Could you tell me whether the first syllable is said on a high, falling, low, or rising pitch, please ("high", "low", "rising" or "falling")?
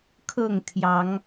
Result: falling